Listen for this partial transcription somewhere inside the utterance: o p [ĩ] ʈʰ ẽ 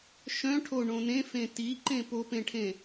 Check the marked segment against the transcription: incorrect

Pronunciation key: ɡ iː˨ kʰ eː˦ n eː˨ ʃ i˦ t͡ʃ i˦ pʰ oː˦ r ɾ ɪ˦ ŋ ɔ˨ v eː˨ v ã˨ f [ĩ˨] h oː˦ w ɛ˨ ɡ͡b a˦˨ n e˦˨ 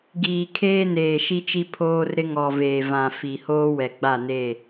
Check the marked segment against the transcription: incorrect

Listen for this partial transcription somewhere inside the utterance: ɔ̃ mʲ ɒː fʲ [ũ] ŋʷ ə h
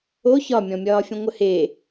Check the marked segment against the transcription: correct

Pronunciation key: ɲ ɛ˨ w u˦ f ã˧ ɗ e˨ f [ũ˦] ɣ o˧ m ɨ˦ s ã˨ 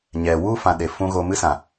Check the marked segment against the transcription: correct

